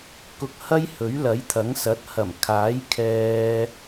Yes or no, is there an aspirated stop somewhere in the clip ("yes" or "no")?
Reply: yes